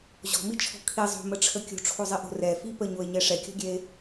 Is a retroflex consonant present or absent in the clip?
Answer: present